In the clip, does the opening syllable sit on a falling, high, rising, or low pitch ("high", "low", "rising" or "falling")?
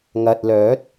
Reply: low